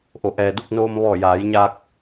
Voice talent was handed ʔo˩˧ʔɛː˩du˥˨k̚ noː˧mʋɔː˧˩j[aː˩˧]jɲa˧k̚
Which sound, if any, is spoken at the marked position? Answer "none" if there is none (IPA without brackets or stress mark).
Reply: aː˩˧